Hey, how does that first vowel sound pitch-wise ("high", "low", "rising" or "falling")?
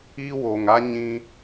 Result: high